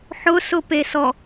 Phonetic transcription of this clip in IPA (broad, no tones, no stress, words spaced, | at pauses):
ħʊsʊpesɔ